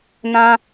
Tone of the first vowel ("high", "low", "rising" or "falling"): high